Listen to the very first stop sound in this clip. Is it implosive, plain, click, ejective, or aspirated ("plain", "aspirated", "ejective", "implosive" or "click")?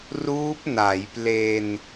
plain